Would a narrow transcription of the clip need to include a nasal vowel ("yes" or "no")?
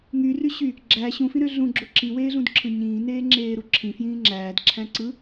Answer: yes